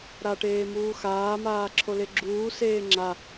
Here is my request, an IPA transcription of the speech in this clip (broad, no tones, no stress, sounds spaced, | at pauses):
ɾ a ʈ eː m uː x aː m aː ǁʰ o l e ɡ͡ǁ uː s eː ŋ͡ǁ a